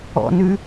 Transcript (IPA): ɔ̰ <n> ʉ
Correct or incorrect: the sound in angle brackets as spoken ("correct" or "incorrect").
correct